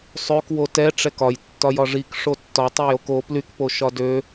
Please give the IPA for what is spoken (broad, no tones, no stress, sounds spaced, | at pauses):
sˤ ø k w o t ɛ ʈ͡ʂ ɛ k ɒ j tː ɒ j ɒ ʐ i k ʂ o tː ɒ tˤ ø j o k o p l y k p o ʃ ɒ d ø